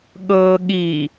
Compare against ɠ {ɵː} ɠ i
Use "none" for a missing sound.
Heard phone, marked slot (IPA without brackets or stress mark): ɤː